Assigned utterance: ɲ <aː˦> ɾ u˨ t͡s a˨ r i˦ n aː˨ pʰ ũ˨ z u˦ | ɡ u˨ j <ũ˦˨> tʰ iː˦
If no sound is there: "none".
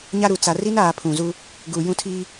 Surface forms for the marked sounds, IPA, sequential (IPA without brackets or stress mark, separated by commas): a˦, ũ˦˨